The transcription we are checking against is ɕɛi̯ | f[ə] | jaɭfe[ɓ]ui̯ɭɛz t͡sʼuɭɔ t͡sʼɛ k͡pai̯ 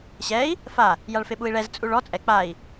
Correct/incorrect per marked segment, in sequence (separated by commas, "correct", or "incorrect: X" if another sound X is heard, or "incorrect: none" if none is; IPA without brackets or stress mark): incorrect: a, correct